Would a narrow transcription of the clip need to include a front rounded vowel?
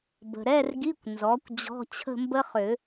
yes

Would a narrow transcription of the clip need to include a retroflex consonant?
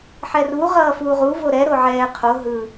no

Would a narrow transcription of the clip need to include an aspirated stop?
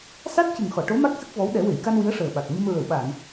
no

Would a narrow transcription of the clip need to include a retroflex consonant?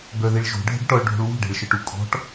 yes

